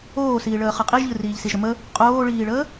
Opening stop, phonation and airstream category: ejective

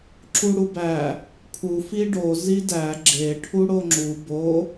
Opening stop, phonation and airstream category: click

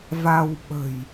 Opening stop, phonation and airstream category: implosive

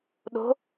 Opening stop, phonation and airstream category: implosive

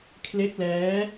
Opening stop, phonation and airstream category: aspirated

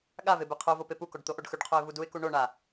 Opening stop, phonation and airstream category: implosive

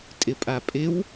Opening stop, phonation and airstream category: ejective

